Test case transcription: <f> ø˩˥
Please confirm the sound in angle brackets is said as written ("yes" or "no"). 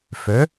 yes